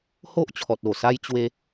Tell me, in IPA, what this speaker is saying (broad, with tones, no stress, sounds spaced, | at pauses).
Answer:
h o˦ ʔ t͡ɕʰ ɔ˨ t̚ o˨˩ s a˦ j t͡ɕ w e˧